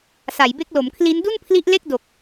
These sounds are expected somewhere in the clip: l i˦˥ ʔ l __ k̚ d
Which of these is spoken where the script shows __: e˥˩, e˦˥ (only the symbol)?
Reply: e˥˩